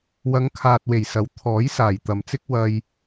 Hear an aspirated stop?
yes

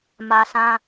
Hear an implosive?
no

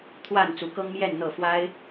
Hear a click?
no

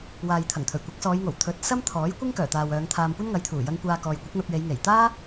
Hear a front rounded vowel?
yes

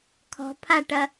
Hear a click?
no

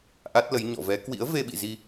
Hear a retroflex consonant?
no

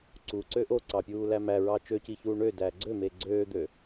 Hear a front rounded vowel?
yes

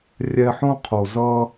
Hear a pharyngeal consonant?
yes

